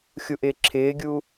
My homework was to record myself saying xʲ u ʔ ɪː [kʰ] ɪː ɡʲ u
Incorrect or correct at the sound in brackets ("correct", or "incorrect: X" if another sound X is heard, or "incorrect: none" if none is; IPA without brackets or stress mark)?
incorrect: ǁʰ